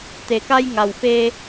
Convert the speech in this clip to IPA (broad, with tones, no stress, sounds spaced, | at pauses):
t̪ e˩ k a˧ j ŋ a˩ w f e˧